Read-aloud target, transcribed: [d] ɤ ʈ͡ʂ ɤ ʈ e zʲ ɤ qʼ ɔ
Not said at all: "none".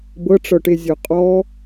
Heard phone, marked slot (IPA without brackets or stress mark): b